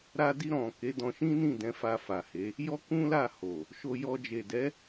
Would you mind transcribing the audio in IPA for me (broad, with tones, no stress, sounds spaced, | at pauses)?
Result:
ɾ a˧ d i˧ ɾ ɔ̃˨ k e˨˦ d ɔ̃˧ ʃ ĩ˦ n ĩ˦˨ d ɛ̃˨˦ f a˧ f a˨ h e˨˦ | j ɔ˦ k ũ˦ l a˦˨ h o˨ | ʃ o˧ j ɔ˧ d͡ʒ e˨ d ɛ˨˦